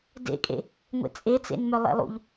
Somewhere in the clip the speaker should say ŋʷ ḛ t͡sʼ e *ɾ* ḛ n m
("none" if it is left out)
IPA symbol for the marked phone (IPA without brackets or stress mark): t͡s